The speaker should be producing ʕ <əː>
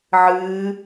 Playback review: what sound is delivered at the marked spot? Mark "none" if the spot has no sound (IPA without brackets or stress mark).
ɨː